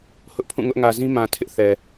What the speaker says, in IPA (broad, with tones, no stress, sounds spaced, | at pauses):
h ʊ˦ ʔ pʰ ũ˦˨ ŋ ʊ˦ ʔ ŋ ä˨ z ĩ˦ m ã˨ tʰ ɪ˦ ʔ θ ɛ˨